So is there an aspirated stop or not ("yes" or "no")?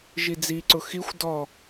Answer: no